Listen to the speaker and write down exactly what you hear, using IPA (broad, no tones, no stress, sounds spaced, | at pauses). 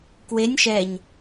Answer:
k w e nʲ ʃ ɛ ɲ